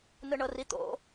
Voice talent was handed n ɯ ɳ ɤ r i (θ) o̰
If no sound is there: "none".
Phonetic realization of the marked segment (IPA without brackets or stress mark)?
t̪